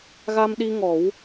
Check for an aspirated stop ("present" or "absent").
absent